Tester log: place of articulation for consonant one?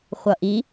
uvular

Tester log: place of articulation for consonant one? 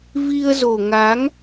labial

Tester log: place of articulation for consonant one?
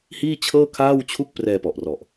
glottal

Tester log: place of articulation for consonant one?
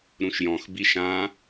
alveolar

